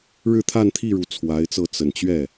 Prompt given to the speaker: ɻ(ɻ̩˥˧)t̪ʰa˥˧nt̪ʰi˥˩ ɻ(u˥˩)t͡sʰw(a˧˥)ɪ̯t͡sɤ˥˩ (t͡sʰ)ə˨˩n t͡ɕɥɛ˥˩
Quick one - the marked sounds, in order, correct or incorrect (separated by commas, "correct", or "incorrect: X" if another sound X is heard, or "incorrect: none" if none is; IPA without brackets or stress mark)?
correct, incorrect: u˧˥, correct, incorrect: t͡s